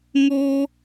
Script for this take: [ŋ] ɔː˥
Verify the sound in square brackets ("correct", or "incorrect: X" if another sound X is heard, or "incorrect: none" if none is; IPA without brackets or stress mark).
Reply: correct